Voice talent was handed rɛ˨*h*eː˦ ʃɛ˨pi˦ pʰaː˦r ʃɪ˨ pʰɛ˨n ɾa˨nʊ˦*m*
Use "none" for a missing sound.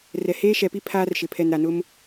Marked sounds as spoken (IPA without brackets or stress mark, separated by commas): h, m